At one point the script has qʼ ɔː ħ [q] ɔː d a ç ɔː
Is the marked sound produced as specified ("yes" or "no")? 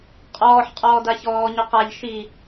no